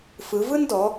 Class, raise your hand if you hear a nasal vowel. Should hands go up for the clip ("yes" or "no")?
no